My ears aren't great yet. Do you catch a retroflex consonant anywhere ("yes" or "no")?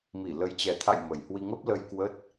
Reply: no